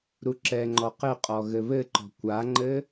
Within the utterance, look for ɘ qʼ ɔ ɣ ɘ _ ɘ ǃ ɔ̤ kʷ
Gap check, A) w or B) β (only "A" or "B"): B